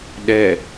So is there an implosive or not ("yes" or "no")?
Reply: yes